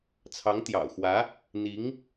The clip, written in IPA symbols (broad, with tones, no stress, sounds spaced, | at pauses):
t͡sʰ ɑ˧˥ ŋ t̪ j ɑ̰˨˩ ʊ̯ x w ä˧˥ | n̪ i˧˥ ŋ